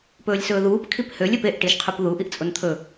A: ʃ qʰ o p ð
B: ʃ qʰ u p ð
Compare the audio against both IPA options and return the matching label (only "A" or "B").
B